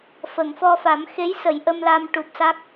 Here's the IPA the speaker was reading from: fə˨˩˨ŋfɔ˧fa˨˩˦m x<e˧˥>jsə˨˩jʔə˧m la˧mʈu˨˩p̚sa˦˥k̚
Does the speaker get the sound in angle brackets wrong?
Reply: no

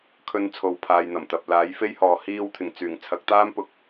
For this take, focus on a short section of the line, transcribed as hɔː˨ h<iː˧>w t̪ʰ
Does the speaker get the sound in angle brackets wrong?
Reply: no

